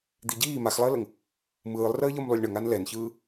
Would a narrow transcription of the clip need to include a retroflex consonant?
yes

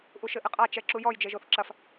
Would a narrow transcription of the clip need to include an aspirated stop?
no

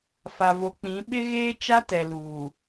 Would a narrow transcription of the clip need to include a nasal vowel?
yes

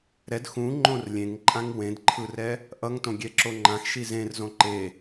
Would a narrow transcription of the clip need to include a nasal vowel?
yes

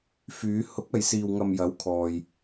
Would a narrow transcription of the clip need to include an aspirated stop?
yes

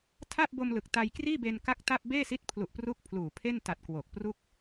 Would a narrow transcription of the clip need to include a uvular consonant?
no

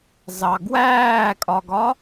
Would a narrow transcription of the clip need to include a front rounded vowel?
no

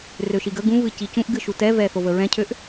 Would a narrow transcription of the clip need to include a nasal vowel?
yes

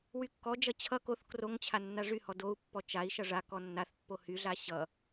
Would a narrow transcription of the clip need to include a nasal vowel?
no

